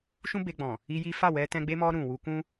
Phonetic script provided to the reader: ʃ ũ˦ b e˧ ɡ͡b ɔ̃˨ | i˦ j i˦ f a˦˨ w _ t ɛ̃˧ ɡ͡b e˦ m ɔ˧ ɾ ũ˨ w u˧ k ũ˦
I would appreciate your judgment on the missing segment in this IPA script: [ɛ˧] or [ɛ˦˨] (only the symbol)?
ɛ˧